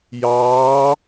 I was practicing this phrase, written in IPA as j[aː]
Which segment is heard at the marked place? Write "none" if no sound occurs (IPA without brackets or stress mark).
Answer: ɑː